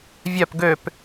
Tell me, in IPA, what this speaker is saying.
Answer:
vʲ œ p ɡ ø p

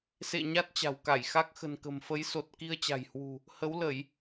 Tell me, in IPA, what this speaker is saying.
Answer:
s ḛ˧˨ ɲ a˦˥ t̚ t͡ɕ a̤˨˩ w k a˧˩ j x a˦˥ k̚ x ə̤˨˩ n k ə̤˨˩ m f ə˨˦ j s o˨˩ t̚ k i˧ ə̯ t͡ɕ a̤˨˩ j h w ṳ˨˩ | h ə˨˦ w l ə˧˩˨ j

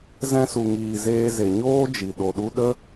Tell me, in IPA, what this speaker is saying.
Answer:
z ɛ̃˧ s u˨ ŋ iː˨ z eː˧ z e˨ ɲ oː˦ d͡ʒ i˨ ɗ o˨ ɗ u˧ ɗ ə˦

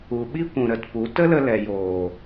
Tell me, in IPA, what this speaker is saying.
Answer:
u˨ ɓ i˦ kʷ ũ˨ ɾ ə˨ t p u˨˦ t ə˦ l ə˧ l ɛ˨ j oː˨

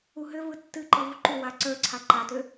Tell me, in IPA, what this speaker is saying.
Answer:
u ɦ ʏ v ɯ tː ɨ ǃ ɯ v u ǃ u w a ǀ ə˞ ǀʰ a ǃ a t ʏ

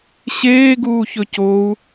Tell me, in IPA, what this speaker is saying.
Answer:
ɕ eː ɡ uː ç ɵ c o u̯

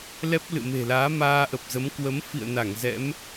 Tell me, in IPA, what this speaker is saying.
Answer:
l ɛ˦˥ p̚ l ɨ̰˧˨ m e̤˨˩ l aː˨˦ m aː˧ ʔ ə˨˩ p̚ z ə˨˦ m k w ə˨˦ m f ḭ˧˨ ə̯ n a˧˩ ŋ z ɛ̰˧˥ m

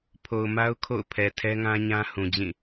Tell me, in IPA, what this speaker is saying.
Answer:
pʰ o˨ ʊ̯ m a˦ ʊ̯ kʰ o̰˦˨ ʊ̯ pʰ ɛ˨ tʰ ɛ˦ ŋ ã˦ ɲ ã˦ h ũ˨ d͡ʑ ĩ˦˨

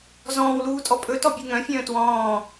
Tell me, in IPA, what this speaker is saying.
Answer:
z ɔ̃ː w l uː tʼ ɔ pʼ ɵ t ɔ bʲ u ŋ œ̃ fʲ œ̃ː t w ɔ̃ː

